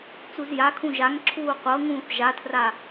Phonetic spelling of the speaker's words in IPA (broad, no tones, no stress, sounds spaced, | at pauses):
t͡s u z j a kʰ ũ ʒ a ŋ ǁʰ uː qʷ ɤ ŋ ũː θ ʒ a tʰ r a